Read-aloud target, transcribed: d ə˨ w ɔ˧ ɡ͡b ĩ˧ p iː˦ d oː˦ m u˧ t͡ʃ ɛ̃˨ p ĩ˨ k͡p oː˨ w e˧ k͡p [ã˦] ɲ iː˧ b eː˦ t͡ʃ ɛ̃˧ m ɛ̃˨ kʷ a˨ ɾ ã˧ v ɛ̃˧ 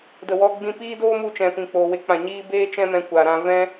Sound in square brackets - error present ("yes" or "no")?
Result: yes